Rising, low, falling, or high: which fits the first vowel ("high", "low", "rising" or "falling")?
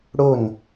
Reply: falling